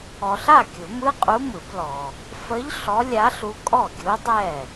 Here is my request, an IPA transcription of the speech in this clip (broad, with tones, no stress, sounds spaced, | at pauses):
ɔ˨ ɬ a˥˩ kʲ u˨˩˦ m ɯ˧˥˧ qʼ u˧˥ m ɯ˨˩˦ b l ɔ˨ | f ə˧˥ ʎ ɬ ɔ˧˥ lʲ a˧˥ ɬ u˧˥ kʼ ɔ˥˩ ɡʲ u˧˥ dˤ ɛ˥˩